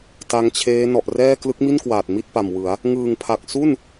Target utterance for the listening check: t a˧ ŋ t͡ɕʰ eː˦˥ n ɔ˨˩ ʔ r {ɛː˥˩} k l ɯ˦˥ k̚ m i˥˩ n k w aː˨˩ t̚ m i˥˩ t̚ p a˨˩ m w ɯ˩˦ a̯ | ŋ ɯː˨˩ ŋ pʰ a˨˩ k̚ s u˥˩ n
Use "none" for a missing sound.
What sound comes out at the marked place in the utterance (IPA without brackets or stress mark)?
ɛː˥˩